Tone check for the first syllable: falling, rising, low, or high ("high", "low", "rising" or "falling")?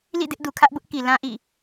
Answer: falling